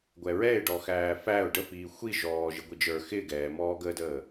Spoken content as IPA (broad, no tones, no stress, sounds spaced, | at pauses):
ɡʷ ɛ ɹ ɛ ɪ̯ ɖ ɔ x æː f æ ʊ̯ ɖ ə f iː xʷ i ʒ ɔː ʒ ɪ ɡʷ i d͡ʒ ə˞ x ɪː ɡ ɛː m ɔː ɡ əː d əː